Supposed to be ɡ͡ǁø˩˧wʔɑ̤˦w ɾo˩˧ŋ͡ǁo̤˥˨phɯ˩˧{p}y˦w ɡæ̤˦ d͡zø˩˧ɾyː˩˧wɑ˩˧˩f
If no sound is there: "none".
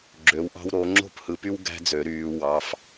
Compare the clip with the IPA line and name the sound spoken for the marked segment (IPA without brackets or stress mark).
p